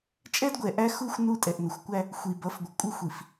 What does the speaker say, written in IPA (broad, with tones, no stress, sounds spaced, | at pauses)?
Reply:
t͡ʃʼ ɛ˦ d ɡʷ ɛ˨ ʔ æ˦ x u˦ xʷ n u˦˨ tʼ ɛ˨ ʔ n ə˨ xʷ kʷ æ˦ | xʷ i˨ b ʌ˨˦ f ɡʷ ə˨ kʷʼ ɪ˦ xʷ i˨ f